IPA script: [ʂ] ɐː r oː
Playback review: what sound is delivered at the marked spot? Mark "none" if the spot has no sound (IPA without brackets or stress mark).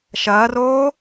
ʃ